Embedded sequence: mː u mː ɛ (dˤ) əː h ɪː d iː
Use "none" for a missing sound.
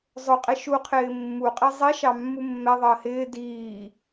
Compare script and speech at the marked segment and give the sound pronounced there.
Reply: ðˤ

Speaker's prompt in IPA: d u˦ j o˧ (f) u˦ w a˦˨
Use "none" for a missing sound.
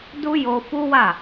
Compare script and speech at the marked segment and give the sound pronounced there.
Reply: f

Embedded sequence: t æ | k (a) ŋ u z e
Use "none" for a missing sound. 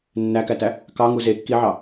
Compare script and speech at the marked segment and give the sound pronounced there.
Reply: ɑ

